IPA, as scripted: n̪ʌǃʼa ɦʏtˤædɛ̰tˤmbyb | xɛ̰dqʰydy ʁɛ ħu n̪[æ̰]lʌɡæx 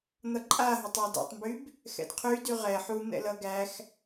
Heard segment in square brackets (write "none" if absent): ɛ̰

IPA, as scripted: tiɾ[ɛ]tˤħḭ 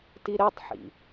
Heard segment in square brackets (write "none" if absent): ɛ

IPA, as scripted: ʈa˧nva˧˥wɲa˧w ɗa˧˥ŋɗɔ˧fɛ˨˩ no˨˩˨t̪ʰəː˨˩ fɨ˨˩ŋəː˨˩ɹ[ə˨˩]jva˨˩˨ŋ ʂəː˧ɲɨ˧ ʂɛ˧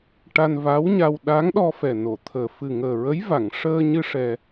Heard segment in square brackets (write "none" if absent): ə˧˥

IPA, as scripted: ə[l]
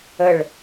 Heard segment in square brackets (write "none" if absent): ɭ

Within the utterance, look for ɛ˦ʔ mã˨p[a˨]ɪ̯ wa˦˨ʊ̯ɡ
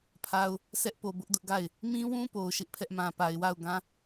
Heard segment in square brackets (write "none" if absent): a˨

